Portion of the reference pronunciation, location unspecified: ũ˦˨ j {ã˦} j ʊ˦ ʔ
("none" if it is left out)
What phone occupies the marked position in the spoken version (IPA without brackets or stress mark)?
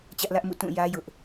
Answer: ä˦